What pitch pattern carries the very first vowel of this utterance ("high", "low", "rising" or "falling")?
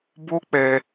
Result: high